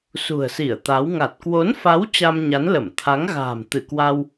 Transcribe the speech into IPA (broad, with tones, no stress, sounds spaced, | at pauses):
s ṳ˨˩ ə̯ s i˧˩ ə̯ t̪ a˨˦ w ŋ a˨˩ t̚ k w o˨˦ n f a˨˦ w t͡ɕ a˧ m ɲ a˨˦ n l ə˧˩ m t̪ʰ a˨˦ ŋ ɣ a̤ː˨˩ m t̪ ɨ˧˩ k w a˧ w